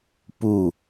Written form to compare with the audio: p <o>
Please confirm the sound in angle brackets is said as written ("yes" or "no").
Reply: no